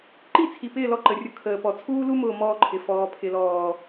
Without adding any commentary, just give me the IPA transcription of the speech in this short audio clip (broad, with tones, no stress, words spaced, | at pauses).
ǃi˦˨t͡sʰi˨pɪː˦˨ lɔ˦ǃə˨rʲʊ˦ kʰəː˨pɔ˨ t͡sʰuː˦lu˦mʊː˨ mɔː˦ǃʰɪ˨ fɔː˨pʰɪ˨lɔː˨